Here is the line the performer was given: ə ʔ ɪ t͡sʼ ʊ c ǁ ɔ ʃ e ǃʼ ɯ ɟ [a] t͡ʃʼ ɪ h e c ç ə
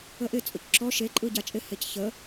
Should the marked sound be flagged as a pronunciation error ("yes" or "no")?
no